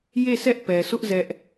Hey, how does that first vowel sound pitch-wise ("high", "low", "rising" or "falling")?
falling